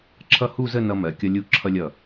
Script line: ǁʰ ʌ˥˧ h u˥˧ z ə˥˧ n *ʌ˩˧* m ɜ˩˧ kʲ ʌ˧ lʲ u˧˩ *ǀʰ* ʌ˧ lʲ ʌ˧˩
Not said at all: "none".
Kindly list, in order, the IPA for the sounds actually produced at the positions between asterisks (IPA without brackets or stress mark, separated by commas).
ʌ˧, ǁʰ